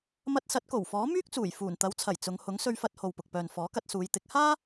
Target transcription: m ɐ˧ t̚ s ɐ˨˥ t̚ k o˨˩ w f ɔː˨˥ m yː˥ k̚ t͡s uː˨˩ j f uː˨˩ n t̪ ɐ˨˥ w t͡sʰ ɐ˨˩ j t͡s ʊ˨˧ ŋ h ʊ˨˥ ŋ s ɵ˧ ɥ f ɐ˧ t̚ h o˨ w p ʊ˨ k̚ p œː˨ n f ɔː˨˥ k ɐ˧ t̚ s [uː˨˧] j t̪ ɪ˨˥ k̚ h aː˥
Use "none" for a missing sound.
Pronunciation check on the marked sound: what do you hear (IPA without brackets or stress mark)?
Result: uː˨˧